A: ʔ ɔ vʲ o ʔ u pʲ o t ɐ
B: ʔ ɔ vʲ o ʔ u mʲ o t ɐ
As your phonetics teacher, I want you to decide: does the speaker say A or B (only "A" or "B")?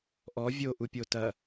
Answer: A